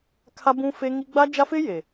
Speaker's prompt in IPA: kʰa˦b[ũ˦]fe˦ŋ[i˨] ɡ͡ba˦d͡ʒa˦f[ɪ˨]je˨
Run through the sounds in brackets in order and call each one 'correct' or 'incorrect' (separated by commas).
correct, incorrect, incorrect